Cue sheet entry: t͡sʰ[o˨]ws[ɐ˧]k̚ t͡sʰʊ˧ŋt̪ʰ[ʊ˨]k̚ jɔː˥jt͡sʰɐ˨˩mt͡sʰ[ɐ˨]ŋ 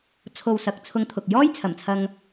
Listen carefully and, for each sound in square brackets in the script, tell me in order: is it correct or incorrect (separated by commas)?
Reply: correct, incorrect, correct, incorrect